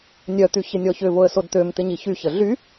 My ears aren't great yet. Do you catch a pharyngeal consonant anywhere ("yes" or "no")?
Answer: no